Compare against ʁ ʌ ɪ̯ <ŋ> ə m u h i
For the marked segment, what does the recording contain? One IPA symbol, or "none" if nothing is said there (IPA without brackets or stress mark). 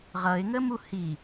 ŋ